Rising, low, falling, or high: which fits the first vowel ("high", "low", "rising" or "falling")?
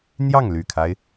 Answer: falling